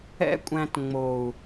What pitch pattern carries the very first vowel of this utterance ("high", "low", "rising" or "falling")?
high